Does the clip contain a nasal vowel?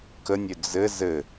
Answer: no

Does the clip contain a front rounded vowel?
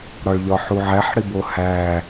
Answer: no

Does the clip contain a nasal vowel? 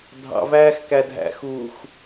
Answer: no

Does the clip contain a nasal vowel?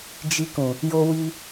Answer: yes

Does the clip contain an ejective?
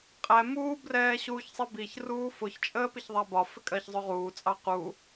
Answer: yes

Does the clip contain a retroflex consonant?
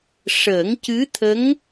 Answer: yes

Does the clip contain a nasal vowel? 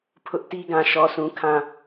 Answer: yes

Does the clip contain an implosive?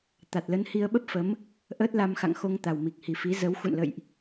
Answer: yes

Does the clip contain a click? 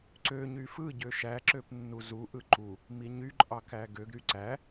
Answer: yes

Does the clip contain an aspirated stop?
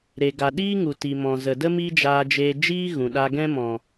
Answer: no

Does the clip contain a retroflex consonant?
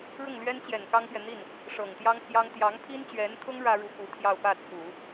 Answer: yes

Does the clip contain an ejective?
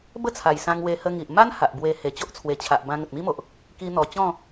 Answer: no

